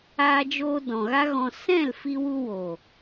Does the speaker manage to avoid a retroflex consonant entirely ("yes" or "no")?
yes